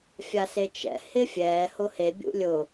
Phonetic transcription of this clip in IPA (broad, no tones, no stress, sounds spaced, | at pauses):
fʲ a s e t͡ʃ ɛ̰ h ɪ fʲ ɛː h ʊ h e bʲ ṵ lʲ ʊ